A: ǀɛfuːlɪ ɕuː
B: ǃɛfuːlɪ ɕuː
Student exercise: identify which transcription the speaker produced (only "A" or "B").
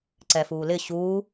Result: A